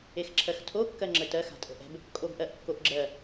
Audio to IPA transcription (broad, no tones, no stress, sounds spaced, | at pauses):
e x ǁʰ ɜ x tʰ o kː ɜ ŋ͡ǁ ə t ɜ x a̤ tʼ ə̤ ʔ ɛ̤ b | kʼ o b ʔ ɜ ʔ kː o ʔ ɡ͡ǁ ɜ